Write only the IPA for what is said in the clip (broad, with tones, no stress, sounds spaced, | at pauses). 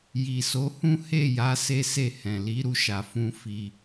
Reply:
j i˨ s o˨˦ h ũ˦ h e˦˨ j a˨˦ s e˦ s e˦˨ h ɛ̃˨ l i˨˦ ɾ u˧ ʃ a˨ f ũ˧ f i˧